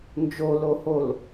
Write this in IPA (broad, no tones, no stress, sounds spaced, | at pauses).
n d͡ʒ o l o h o l